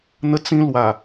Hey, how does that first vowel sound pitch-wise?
high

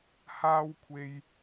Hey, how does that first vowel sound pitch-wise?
high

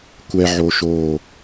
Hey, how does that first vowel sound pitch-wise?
high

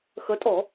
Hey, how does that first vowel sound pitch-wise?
rising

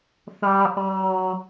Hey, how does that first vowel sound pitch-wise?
high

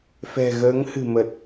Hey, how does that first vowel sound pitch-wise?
low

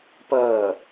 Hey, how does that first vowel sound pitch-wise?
falling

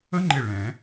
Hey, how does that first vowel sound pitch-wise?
high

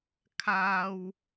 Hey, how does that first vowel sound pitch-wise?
high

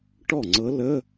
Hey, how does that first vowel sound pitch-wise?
falling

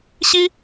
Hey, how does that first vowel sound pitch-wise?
high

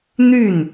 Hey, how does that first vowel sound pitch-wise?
falling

